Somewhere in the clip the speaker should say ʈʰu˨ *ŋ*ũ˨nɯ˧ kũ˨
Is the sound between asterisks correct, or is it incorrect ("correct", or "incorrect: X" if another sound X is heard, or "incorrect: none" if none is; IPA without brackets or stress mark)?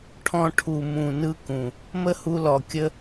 incorrect: m